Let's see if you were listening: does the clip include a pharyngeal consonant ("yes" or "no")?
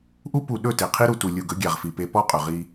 no